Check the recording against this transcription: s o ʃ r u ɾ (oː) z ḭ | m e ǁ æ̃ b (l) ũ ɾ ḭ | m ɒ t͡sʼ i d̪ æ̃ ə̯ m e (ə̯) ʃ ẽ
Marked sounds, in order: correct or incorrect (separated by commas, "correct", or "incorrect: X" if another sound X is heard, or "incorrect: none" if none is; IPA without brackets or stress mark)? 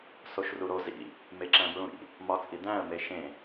incorrect: o, incorrect: ɹ, incorrect: none